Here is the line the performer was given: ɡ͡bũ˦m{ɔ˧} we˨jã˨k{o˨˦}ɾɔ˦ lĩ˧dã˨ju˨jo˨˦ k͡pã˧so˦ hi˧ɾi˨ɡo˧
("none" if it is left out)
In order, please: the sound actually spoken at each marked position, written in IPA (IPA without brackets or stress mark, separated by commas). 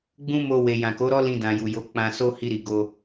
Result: o˧, o˨˦